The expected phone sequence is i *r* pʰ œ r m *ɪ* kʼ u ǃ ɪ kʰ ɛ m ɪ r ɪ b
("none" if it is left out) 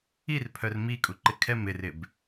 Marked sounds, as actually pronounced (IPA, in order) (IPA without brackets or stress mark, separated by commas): r, i